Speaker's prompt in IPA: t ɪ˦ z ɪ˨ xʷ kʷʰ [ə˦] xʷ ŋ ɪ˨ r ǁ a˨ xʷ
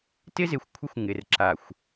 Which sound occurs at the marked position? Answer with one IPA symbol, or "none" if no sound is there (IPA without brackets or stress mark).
ɪ˦